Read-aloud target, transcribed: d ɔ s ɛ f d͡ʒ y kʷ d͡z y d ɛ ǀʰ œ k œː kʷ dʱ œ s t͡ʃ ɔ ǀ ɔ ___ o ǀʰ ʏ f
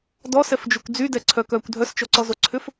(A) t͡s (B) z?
B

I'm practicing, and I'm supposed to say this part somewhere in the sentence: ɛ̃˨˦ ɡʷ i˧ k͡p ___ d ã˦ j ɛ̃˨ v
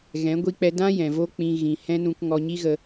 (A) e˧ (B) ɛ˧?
B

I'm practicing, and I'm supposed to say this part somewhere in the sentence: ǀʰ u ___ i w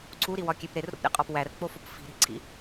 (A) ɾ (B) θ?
A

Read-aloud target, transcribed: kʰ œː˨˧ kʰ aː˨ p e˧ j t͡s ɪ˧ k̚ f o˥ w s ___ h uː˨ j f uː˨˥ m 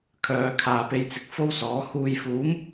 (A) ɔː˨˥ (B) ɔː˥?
A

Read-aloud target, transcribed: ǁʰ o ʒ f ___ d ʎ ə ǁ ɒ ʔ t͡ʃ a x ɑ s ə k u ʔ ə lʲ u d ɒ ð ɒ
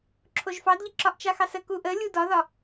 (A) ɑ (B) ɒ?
A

